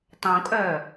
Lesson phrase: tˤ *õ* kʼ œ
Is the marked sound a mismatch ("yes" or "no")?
no